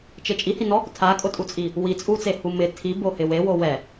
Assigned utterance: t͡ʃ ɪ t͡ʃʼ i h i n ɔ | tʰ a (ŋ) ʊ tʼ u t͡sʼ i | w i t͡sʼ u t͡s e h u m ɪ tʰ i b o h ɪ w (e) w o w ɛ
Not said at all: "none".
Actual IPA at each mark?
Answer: kʼ, e

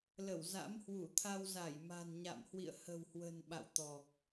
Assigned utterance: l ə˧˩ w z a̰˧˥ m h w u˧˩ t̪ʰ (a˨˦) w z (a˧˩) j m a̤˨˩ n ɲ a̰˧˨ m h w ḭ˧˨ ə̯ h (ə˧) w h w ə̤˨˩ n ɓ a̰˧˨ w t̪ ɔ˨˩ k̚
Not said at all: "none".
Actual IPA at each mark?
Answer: a˧, a˧˩, ə̤˨˩

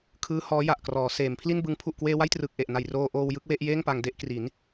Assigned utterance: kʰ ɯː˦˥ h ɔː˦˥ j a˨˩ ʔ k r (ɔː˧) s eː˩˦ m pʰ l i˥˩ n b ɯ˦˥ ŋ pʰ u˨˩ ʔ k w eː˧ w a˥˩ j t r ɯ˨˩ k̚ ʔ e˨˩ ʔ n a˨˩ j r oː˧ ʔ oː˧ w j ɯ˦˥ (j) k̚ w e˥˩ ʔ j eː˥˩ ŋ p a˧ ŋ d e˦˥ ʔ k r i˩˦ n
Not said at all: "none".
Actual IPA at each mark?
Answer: ɔː˩˦, none

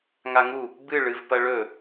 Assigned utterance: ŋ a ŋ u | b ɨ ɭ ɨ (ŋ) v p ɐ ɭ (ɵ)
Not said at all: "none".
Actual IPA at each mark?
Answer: none, ɵ

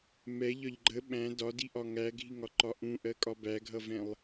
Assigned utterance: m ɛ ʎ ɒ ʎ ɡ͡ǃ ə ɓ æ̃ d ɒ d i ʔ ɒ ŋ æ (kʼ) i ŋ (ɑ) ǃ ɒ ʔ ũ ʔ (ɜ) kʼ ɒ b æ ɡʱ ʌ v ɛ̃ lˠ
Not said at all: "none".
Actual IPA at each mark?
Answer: ɡʱ, ɒ, ɜ

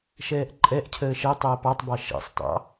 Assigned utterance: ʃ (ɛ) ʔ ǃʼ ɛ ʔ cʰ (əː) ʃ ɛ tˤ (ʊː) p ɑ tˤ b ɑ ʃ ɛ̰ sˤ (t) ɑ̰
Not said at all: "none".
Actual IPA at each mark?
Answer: ɛː, əː, əː, t

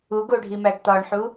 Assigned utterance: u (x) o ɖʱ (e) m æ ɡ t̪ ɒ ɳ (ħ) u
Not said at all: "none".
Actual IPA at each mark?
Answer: ɡ, i, ħ

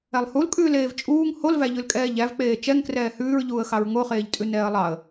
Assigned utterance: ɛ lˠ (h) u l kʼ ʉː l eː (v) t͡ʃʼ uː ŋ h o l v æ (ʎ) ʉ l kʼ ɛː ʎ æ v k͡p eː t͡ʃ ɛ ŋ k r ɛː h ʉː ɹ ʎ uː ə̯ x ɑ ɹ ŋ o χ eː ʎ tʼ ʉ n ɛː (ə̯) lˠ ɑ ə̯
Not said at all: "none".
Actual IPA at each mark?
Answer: h, v, ʎ, ə̯

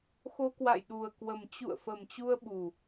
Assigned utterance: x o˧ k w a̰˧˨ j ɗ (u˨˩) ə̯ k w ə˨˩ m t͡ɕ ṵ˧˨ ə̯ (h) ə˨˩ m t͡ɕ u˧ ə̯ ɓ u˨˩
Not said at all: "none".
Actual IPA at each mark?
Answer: u˨˩, f

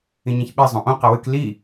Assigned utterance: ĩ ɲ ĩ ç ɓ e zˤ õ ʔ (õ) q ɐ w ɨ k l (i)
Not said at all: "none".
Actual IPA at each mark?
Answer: õ, i

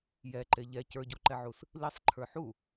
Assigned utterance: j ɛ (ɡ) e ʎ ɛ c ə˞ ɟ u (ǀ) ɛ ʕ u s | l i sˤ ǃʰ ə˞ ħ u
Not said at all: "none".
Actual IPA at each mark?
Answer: ǃ, ǃ

